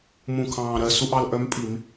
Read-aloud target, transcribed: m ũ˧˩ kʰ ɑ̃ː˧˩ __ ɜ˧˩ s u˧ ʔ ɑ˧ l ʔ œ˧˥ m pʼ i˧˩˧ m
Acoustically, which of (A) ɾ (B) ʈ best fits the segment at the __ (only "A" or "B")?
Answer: A